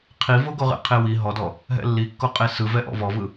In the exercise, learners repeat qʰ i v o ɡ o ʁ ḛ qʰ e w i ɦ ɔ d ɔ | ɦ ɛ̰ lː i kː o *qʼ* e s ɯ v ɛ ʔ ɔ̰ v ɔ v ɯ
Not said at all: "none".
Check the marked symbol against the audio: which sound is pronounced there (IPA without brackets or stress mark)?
qʼ